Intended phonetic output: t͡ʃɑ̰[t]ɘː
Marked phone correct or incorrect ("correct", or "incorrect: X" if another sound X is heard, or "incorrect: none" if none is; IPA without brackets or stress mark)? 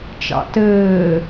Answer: correct